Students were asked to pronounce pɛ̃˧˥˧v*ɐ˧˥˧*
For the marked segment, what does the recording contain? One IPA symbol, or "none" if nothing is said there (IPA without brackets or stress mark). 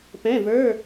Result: ə˞˧˥˧